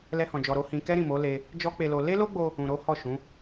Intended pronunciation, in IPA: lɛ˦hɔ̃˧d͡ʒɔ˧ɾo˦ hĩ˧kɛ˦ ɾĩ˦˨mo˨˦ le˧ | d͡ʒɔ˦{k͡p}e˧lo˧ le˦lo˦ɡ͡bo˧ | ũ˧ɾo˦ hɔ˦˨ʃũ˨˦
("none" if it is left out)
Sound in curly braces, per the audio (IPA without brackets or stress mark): k͡p